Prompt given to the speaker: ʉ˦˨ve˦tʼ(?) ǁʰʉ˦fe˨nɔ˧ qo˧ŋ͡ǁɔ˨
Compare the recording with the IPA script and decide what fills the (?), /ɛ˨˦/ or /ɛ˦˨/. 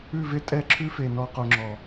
ɛ˦˨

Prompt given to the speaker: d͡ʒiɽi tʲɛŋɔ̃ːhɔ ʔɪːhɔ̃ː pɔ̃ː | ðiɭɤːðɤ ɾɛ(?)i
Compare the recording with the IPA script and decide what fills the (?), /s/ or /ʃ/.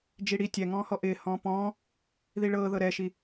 ʃ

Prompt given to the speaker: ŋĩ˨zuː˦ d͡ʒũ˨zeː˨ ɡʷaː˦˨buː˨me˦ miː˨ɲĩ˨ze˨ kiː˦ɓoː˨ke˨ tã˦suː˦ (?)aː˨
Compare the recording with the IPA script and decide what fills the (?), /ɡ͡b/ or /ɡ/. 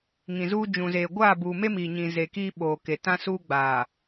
ɡ͡b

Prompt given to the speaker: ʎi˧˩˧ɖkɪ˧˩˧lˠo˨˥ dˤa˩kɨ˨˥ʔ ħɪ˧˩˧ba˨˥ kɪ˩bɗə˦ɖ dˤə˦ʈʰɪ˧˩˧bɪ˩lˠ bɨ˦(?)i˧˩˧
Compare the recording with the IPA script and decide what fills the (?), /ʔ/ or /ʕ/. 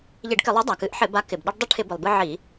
ʕ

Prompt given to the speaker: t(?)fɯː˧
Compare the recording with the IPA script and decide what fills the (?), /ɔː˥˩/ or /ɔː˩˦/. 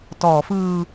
ɔː˩˦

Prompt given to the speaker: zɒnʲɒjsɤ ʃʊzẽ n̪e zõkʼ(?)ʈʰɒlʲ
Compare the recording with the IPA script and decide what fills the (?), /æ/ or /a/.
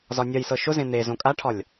a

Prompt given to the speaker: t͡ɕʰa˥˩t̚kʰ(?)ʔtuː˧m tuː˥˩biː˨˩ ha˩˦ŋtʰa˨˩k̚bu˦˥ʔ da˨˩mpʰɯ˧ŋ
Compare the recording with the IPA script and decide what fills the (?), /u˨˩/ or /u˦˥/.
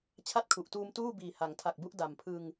u˨˩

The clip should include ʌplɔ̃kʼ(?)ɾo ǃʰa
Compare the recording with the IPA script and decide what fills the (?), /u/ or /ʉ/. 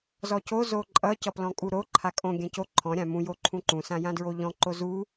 u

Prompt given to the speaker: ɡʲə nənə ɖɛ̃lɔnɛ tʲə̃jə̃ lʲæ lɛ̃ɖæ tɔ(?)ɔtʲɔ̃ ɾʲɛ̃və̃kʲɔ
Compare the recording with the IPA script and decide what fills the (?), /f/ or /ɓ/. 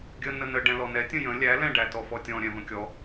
f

